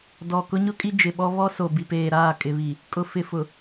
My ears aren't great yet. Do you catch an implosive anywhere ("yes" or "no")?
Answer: yes